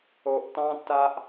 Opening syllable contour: low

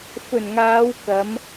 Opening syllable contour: low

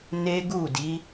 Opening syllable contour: high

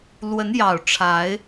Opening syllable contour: rising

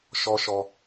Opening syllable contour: low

